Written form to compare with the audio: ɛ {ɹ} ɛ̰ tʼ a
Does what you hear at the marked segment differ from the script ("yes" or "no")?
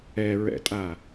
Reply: no